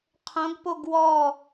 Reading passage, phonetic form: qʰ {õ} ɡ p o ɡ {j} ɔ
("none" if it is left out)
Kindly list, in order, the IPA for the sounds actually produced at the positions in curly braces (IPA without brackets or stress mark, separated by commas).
õ, w